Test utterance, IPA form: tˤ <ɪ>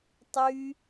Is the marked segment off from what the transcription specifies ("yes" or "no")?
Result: yes